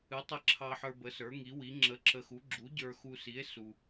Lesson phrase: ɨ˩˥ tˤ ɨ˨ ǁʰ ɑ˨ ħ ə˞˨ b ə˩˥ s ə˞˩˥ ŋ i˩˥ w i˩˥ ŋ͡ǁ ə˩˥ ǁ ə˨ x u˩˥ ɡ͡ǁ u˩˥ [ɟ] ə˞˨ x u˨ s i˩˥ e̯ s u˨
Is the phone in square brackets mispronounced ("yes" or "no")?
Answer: no